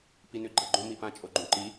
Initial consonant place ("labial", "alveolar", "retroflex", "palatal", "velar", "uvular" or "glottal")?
labial